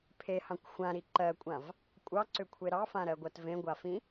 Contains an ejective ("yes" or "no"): yes